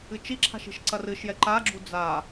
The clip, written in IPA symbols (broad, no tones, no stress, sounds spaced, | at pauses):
ɨ t͡ʃ i ǁʰ a̤ ʃ i̤ ʃ ǀ ɐ r ɨ ʃ j ɛ ǃ a ɡ͡ǁ u d͡z a